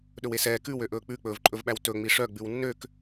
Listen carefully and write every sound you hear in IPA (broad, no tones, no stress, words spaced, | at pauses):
ɗɵwesɛː kʉwøʔɵː k͡pʉk͡pɵːvǃʼɵvɓæw tɵ ŋ͡miʂœɡ͡bʉw nːøk